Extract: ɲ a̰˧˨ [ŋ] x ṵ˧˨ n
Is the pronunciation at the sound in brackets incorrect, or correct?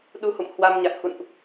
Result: correct